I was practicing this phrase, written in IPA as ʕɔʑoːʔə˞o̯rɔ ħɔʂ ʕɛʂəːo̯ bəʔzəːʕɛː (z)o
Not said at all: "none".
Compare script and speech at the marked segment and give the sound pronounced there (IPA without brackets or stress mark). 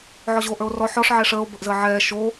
ʃ